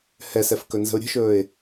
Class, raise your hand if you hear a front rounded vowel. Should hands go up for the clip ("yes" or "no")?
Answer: no